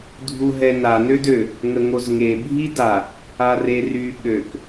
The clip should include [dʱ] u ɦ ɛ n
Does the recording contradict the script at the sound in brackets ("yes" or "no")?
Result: no